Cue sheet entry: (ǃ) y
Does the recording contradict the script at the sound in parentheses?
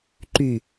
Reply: no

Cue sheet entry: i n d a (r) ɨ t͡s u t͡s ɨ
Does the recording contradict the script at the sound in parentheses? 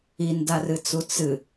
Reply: no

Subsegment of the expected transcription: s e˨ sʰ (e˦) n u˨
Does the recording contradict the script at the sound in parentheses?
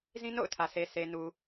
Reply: yes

